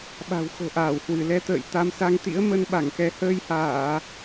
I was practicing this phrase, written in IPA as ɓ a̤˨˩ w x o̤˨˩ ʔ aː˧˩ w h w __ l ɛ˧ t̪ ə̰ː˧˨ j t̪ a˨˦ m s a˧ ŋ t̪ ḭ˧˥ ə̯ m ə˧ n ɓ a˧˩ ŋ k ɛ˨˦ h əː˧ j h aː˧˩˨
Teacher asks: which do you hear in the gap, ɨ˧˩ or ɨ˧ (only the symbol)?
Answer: ɨ˧˩